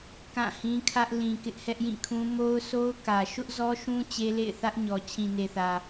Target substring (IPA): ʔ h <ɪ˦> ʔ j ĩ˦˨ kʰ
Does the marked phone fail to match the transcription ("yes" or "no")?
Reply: yes